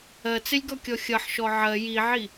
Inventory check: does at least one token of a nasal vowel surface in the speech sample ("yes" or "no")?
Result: no